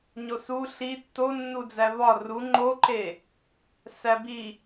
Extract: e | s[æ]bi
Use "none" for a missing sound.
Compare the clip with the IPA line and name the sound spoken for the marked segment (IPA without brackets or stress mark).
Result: æ